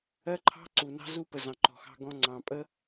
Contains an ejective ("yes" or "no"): yes